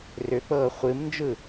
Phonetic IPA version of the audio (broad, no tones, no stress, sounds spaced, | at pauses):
r ʏ k͡p ɤː χʷ ɨ m n d͡ʒ ɯ